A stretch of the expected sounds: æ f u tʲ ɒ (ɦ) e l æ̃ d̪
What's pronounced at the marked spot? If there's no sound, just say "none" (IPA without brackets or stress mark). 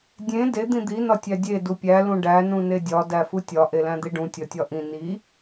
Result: ʔ